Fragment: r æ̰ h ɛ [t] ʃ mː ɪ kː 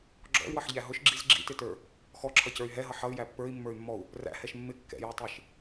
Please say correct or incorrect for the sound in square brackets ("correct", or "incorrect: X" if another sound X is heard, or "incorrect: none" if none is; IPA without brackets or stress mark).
incorrect: none